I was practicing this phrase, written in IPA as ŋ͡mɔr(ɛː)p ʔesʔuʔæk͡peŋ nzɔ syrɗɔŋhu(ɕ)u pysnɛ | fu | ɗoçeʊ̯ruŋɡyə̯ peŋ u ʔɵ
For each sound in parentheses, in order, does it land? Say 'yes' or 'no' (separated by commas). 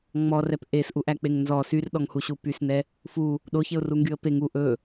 no, yes